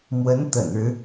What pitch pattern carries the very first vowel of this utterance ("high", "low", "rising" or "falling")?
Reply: rising